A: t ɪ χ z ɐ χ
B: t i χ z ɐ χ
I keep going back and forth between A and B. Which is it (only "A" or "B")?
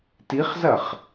B